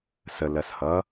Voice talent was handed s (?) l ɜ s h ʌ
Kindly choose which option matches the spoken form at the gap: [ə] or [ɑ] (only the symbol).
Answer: ə